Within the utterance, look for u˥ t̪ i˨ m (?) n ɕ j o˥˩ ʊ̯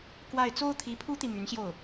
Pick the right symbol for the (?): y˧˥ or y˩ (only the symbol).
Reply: y˧˥